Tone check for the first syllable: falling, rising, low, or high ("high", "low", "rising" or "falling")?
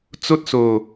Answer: high